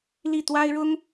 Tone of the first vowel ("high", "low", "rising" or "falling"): falling